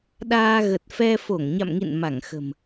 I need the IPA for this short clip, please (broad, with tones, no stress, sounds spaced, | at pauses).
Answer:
ɗ aː˧ ɣ ə˨˩ t̚ f ɛ˧ f o˧˩ ŋ ɲ a̰˧˨ m ŋ ḭ˧˨ n m a˧˩ ŋ x ə̤˨˩ m